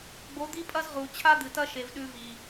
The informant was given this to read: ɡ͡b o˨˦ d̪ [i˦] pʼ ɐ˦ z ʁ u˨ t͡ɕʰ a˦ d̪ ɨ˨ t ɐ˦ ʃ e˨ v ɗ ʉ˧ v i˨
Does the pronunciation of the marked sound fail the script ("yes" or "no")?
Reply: no